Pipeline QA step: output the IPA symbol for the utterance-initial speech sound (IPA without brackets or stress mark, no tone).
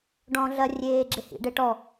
ɖ